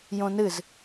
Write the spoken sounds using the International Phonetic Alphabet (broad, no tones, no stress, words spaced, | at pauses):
jõnɨz